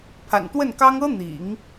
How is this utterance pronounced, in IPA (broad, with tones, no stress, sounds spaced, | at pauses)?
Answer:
pʰ a̰˨˩ n t̪ w ə˥˩ n k ɑ˥ ŋ ɤ˥ n̪ ḭ˨˩˦ ŋ